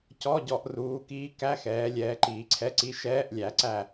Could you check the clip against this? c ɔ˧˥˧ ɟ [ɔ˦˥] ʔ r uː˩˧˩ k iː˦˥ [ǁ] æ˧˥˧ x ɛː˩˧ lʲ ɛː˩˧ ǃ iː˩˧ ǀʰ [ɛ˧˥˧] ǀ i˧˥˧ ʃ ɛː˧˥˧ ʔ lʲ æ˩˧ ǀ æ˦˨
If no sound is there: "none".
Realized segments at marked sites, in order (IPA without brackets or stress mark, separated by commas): ɔ˩˧, k, ɛ˧˥˧